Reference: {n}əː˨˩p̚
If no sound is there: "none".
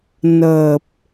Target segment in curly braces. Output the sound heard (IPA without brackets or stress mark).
n